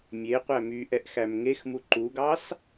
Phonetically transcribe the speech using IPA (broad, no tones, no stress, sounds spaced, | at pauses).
mʲ e qʷ æ m y ʔ ɛ ʔ x æ m ŋ e x m u ǃ u ɡ ɑ s